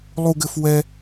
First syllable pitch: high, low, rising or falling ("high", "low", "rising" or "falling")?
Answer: high